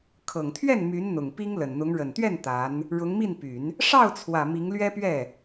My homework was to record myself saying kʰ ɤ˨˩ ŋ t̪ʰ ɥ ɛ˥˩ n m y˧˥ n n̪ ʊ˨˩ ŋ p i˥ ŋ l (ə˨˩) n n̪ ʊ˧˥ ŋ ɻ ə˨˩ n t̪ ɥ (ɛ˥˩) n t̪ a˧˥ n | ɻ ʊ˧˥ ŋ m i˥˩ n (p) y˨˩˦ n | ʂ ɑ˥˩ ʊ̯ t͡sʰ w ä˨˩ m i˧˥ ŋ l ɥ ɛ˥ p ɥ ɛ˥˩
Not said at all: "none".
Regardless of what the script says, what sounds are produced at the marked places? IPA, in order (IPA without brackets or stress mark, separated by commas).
ə˨˩, ɛ˥˩, p